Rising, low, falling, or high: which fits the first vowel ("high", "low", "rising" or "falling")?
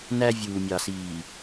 high